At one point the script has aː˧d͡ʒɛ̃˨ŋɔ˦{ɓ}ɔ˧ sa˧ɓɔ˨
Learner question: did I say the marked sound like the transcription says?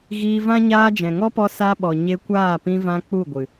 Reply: no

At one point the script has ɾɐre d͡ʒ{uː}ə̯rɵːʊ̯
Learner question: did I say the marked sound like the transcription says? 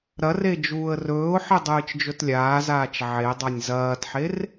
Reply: yes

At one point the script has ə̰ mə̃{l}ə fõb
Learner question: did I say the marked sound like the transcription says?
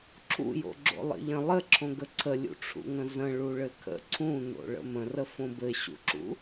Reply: no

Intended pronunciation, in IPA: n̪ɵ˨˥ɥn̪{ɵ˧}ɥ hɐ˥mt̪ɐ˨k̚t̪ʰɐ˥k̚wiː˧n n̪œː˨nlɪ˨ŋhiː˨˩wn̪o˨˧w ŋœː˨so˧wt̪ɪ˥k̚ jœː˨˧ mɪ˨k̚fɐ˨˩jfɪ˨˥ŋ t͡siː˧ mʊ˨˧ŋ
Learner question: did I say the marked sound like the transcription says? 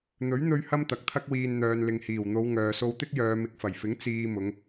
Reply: yes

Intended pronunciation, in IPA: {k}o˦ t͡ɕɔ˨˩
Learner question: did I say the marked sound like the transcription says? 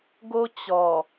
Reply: no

